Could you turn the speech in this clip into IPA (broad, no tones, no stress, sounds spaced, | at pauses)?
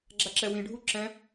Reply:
ɡ͡ǁ a ǁ ɛ w ĩ ɖʱ u ǁ ɛ̃